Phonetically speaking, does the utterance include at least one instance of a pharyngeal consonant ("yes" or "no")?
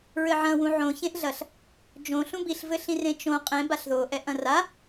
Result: yes